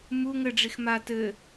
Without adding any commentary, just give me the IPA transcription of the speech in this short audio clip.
mu ŋɘɖ͡ʐix ma tɘ

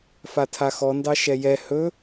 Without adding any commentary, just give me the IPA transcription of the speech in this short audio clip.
fatʰaxɔndɑ ʃɛjɛ hɵ

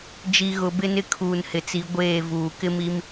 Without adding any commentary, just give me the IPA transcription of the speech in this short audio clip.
d͡ʒi˨ɣʊ˨ bɪ˦ nɪ˦kʰuː˨nhɪ˨t͡si˨˦ ɡʷeː˦˨ vuː˨kɪ˦mi˦m

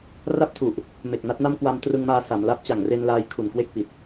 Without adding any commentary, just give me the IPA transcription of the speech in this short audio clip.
ra˥˩p̚tʰu˨˩ʔ | me˨˩k̚na˦˥t̚na˥˩m kwa˧mtrɯ˧ŋmaː˧ sa˩˦mla˦˥p̚ t͡ɕa˨˩ŋre˧nlaː˧j kʰu˨˩nkwe˥˩k̚pi˨˩t̚

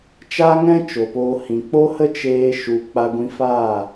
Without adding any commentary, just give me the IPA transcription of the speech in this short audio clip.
t͡ʃa˦ŋɛ̃˦ t͡ʃo˨poː˧ hĩ˨ k͡po˦hə˦ t͡ʃeː˦ʃu˧ k͡pa˧ɡʷĩ˧faː˦˨

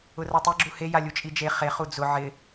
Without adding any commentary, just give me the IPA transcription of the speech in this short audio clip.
ʊratˤiɡ͡ǁu heja lʲut͡ʃʼid͡ʒe χeχu d͡zʊ ʕɪ

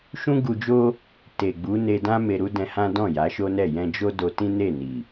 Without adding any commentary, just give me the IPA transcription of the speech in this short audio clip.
ʃũ˦ɡu˧d͡ʒo˦ | te˨ɡ͡bu˨˦ ne˧dã˦ me˧ɾu˦dɛ̃˧hã˦ dɔ̃˦˨ja˨˦ʃo˦nɛ˦˨ jɛ̃˧ d͡ʒo˦do˧tĩ˦ne˦˨ ni˨

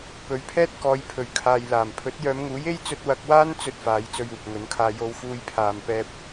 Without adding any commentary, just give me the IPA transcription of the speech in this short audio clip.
pɵ˨˥ɥpʰɛː˥t̚kɔː˨˧j pʰɵ˨˩ɥkʰaː˨jlaː˨˩m pʰɵ˨˥t̚jœː˨˧mŋuː˨˥je˥j t͡sɵ˧t̚wɐ˧k̚waː˥n t͡sɵ˥t̚faː˨˥j t͡sɵ˥ɥuː˨k̚ŋɵ˨˥nkʰaː˥ jo˧wfuː˧j pʰaː˨mpɛː˧p̚

